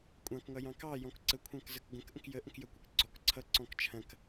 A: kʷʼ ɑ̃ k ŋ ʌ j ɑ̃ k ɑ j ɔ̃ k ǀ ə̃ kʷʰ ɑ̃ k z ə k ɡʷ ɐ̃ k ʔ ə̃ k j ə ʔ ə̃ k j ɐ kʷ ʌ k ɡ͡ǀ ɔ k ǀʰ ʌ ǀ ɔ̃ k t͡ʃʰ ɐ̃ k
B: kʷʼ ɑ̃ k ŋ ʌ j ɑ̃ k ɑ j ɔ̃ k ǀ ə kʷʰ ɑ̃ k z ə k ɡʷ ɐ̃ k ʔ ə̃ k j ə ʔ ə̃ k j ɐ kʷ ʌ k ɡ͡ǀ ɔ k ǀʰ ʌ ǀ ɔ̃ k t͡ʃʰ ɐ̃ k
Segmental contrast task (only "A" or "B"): B